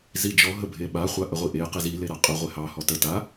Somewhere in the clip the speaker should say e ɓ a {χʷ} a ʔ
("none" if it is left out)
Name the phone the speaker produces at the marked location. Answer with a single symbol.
χʷ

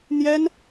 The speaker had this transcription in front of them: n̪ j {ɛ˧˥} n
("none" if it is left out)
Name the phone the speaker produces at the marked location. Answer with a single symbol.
ɛ˥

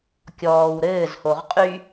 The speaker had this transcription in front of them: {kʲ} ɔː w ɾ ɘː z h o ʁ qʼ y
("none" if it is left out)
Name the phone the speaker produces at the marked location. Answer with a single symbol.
kʲ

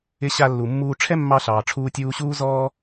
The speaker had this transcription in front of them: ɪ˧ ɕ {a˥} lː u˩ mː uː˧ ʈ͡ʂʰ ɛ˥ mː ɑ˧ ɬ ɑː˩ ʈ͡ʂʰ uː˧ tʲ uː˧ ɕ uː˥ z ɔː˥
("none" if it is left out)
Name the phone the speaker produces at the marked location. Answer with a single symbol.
a˧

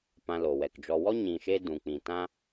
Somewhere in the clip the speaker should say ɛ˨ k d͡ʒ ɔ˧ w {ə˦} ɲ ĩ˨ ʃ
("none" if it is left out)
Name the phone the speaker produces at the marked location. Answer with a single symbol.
ɔ˦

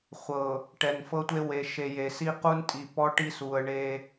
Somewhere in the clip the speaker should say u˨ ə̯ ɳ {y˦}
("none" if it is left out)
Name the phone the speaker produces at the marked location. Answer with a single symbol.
e˦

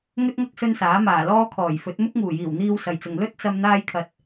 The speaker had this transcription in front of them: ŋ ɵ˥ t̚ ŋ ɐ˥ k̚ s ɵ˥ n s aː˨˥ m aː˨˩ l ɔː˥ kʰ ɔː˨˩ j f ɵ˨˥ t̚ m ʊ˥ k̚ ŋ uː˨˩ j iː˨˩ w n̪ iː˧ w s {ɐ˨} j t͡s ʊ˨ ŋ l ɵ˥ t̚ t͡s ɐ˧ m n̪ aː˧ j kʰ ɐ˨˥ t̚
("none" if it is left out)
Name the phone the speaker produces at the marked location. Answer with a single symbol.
ɐ˨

